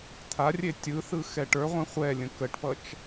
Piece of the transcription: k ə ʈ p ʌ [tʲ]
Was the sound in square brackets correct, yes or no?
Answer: no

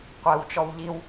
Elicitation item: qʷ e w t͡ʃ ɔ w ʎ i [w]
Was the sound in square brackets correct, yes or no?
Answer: yes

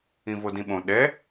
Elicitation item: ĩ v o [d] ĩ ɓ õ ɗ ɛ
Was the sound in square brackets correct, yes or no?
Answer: yes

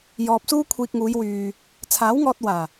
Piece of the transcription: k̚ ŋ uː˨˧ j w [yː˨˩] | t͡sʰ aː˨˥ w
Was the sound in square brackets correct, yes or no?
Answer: no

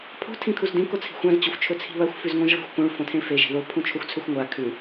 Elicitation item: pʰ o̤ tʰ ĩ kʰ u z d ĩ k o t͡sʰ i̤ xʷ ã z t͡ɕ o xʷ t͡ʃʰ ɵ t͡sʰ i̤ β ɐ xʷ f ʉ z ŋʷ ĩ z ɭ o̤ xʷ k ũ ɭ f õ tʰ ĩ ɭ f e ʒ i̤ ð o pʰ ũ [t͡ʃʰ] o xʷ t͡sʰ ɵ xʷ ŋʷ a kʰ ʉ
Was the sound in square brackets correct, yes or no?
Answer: yes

